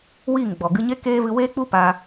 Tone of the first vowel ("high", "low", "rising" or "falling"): falling